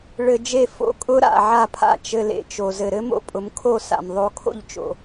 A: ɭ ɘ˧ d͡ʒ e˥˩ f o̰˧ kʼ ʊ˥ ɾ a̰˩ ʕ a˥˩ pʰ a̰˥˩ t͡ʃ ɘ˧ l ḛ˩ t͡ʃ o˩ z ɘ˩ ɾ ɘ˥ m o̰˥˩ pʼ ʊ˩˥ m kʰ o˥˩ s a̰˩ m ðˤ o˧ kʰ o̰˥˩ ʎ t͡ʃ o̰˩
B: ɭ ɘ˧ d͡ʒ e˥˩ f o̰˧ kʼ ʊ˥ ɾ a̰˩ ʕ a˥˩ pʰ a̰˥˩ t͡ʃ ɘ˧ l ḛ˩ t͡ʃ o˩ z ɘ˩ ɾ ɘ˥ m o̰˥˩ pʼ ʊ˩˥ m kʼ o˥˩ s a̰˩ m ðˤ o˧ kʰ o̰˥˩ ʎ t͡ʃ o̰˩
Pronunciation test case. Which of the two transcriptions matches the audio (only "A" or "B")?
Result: A